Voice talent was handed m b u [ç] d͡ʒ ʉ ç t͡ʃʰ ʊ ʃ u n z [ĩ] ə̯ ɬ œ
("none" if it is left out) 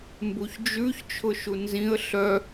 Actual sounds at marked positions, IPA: ç, ĩ

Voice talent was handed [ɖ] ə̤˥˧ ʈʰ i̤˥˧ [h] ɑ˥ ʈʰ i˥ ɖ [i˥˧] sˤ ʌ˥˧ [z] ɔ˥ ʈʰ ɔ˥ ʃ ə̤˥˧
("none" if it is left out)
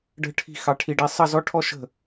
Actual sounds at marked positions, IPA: ɖ, x, i˥, z

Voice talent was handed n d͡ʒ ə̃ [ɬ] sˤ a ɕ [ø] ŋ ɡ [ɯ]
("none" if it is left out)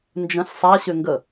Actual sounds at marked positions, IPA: ɬ, ø, ə

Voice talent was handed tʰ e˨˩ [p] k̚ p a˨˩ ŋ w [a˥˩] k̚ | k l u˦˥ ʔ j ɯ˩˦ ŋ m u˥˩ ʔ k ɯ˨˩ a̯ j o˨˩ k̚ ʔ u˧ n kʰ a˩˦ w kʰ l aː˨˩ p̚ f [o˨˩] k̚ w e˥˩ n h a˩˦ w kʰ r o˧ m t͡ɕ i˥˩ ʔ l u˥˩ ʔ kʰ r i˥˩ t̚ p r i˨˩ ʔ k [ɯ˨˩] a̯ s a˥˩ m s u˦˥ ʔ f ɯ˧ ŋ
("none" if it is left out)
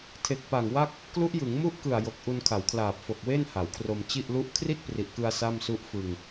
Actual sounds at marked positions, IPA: none, a˥˩, o˨˩, ɯ˧

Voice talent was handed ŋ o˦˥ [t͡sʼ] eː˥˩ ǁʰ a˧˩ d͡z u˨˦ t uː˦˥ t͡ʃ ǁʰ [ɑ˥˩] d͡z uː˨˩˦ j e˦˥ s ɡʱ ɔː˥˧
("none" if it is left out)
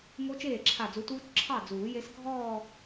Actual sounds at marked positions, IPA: t͡ʃ, ɑ˥˩

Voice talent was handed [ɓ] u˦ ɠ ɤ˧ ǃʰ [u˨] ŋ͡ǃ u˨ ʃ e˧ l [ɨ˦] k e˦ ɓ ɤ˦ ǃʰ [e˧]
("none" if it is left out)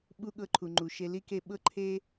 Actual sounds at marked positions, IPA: ɓ, u˨, i˦, e˦

